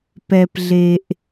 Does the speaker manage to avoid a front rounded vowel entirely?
yes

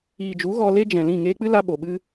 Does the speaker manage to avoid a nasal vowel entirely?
no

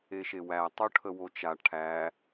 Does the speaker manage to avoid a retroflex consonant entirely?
no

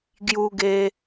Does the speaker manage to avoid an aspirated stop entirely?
yes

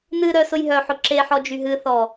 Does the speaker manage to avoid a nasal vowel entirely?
yes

